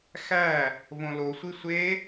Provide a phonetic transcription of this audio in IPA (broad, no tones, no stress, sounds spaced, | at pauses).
x æ | v õ l o sʷ i sʷ e